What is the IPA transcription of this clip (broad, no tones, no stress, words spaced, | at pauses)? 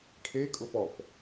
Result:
ʈʰe kʼʊfɔp